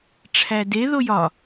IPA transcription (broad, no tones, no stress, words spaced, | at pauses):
ʈ͡ʂʰæde ðojɒ